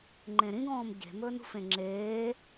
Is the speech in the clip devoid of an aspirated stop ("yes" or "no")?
yes